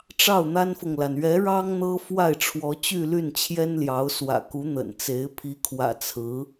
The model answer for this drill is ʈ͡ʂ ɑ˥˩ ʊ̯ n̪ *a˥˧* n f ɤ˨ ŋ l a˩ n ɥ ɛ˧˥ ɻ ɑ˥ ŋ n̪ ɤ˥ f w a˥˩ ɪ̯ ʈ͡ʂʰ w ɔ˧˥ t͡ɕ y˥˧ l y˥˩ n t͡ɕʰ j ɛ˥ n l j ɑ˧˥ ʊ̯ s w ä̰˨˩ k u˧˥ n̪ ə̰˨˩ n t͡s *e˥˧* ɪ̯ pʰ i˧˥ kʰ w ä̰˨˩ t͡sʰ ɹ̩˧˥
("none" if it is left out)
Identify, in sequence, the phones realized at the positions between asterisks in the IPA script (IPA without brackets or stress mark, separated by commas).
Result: a˥, e˧˥